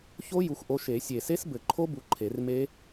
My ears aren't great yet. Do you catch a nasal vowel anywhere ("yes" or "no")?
no